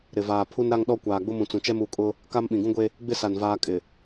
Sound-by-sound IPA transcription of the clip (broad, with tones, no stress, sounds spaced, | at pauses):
ɾ ɪ˨ v aː˨ pʰ u˦ n ɾ a˦ ŋ ɗ ɔ˦ kʷ aː˨ ɡ͡b ʊ˦ m ũ˨ t͡s ũ˨ t͡ʃ ɛ˦ m u˨ kʼ ʊ˦ | k a˦ m ɓ ĩ˨ ɡ ũ˦ ɡʷ e˦ | ɡ͡b ɪ˦ s a˨ n v aː˦ kʼ ɪ˨